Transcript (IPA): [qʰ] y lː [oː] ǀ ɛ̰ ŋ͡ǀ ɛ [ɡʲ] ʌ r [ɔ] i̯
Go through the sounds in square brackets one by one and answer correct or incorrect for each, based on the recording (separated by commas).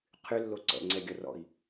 correct, incorrect, correct, incorrect